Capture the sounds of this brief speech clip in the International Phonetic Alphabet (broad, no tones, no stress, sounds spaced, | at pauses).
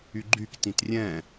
y ɡ͡ǃ y k t ĩ t rʲ ɛ̃